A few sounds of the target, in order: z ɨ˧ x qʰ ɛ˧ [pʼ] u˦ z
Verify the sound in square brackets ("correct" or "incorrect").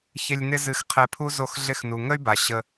incorrect